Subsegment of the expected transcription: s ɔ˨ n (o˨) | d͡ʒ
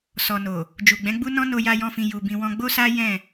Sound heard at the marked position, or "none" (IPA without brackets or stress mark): o˨